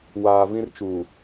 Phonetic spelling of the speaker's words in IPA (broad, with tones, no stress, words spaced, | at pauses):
waː˨vĩ˦rt͡ʃuː˨